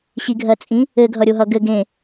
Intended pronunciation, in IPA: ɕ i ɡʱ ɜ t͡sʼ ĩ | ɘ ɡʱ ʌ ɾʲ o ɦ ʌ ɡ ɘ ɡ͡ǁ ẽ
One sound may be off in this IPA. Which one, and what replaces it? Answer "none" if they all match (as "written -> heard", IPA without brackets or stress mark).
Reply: ɡ͡ǁ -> ɡ